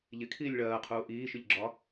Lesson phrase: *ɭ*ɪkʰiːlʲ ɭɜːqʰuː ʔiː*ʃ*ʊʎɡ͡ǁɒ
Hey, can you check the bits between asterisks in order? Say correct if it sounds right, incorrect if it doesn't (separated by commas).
incorrect, correct